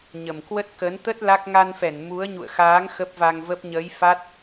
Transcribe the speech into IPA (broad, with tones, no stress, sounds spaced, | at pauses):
ɲ ə˨˩ m k w ə˦˥ t̚ k ə˨˦ n t̪ ə˦˥ t̚ l a˦˥ k̚ ŋ a˧ n f ɛ˧˩ n m u˨˦ ə̯ ɲ ṵ˧˨ ə̯ x aː˨˦ ŋ x ə˦˥ p̚ v a˧ ŋ v ə˦˥ p̚ ɲ əː˨˦ j f a˦˥ t̚